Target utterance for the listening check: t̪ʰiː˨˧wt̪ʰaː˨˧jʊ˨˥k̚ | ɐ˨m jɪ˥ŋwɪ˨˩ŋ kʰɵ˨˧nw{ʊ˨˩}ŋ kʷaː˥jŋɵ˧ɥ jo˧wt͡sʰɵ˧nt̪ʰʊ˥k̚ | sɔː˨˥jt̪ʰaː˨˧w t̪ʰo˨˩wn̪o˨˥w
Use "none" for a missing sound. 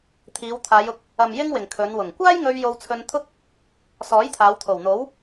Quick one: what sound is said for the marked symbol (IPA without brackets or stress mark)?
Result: ʊ˨˩